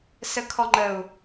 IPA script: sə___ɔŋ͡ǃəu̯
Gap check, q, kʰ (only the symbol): kʰ